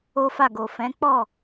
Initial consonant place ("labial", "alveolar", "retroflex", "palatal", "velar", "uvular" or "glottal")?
labial